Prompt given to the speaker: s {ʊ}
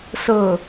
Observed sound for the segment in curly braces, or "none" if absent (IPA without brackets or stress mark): ʊ